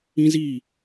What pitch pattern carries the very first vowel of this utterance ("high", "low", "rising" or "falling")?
high